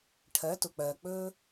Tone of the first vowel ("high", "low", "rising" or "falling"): rising